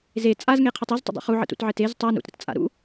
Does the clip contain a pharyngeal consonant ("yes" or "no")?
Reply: yes